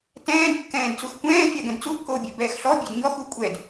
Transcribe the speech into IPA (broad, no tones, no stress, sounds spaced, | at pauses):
t ɛ̃ː d kː ɛ̃ː d t͡s u x kʷ ɛ̃ː fʲ a ɡ ɛ̃ d t͡s u kː oː bʲ ɛ b ɛː x ɬ ɔ bʲ ɛ d ɲ ɔ x u kʷʼ ɛ d